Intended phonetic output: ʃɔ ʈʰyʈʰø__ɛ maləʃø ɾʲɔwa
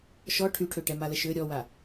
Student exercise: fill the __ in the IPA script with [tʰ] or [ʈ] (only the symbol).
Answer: ʈ